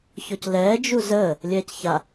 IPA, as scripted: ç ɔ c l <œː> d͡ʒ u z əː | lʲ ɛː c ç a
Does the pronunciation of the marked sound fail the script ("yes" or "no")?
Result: yes